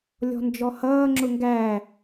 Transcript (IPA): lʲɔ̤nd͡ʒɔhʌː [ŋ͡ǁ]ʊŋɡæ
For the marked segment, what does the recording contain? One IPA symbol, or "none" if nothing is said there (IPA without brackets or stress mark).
ŋ͡ǁ